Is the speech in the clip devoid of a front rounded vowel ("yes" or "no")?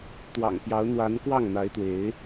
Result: yes